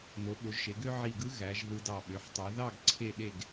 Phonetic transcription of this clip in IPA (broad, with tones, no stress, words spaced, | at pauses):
no˩˧ɓo˩˧ʒʃe˩˧ɡø˥ ʕi˧˩ɡɯ˥ ɣæ˩˧ʒ ðɯ˧dɑ˧˩ ɓø˩˧ħtˤu˩˧ ðɑ˥˧ɡ ǀʰe˥˧ɗe˥˧ɡ